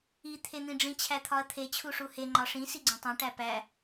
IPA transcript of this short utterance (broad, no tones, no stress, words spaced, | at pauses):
i t̪ʰen̪ĩɖ͡ʐĩ t͡ɕʰæt̪ʰɒɐ̯t̪ʰe t͡ɕʰuʂuhe ŋ͡ǃɒʂĩ siɡ͡ǀõtˤõ ʈæpæ